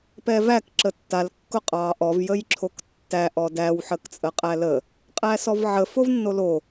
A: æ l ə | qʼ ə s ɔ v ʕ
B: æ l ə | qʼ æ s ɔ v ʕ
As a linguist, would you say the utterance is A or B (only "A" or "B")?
B